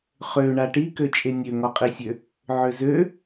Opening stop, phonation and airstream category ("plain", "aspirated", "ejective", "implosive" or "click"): plain